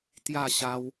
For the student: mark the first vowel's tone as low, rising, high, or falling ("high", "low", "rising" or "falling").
falling